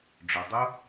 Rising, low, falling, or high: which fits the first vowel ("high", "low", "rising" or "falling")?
low